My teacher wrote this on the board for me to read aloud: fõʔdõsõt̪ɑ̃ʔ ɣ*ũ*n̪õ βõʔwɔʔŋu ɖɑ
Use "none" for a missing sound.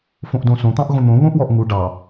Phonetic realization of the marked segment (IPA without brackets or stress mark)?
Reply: õ